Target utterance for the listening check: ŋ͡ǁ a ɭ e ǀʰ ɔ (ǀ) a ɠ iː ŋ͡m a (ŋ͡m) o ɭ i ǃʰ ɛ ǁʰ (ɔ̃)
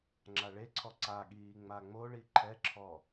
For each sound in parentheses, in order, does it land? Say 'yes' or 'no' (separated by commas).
yes, yes, no